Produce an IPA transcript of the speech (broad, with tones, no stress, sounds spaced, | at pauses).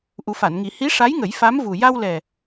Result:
ʔ u˨˩˦ f a˨˩˨ n ŋ i˨˩˦ h i˧˥ ʂ a˧˥ j ŋ ə˨˩˦ j f a˧˥ m v u˨˩ j a˧ w l ɛ˨˩